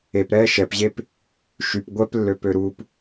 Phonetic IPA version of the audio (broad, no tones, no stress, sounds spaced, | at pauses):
e p ɾ ɛː ʃ ɛ p ʑ e p | ʃ y p ɡʷ ɛ p lː ø p ø ɾ u p